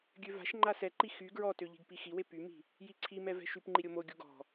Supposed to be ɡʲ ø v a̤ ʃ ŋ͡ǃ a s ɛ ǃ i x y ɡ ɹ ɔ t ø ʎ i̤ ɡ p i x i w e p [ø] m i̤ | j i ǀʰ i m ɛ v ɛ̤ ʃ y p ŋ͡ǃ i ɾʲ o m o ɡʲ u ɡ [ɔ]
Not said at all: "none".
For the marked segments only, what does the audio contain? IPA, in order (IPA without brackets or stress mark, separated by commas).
y, ɔ̤